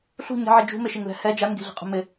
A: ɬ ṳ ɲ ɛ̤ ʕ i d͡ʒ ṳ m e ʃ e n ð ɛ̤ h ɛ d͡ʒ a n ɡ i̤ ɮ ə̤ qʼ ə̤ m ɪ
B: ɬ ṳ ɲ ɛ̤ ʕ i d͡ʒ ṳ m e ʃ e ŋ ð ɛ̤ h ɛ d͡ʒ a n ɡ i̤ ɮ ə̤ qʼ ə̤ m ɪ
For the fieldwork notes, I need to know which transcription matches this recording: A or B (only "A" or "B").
B